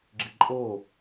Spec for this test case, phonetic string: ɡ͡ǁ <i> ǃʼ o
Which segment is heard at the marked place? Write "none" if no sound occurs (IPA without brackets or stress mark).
i